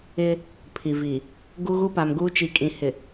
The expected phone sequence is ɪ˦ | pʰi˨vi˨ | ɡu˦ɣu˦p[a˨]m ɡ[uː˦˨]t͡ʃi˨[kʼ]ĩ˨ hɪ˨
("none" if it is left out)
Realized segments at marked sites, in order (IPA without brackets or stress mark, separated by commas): a˨, uː˦, kʼ